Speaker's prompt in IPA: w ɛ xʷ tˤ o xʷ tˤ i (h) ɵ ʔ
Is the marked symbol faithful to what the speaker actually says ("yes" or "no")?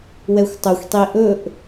no